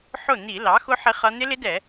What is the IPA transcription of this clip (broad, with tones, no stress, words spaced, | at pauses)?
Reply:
ħʊ˥˩ n̪i˧˩˧lɑ˩˥xʊ˦˥ ħɪ˦˥χʌ˦˥ n̪ɪ˦˥lɪ˦˥dɛ˧˩˧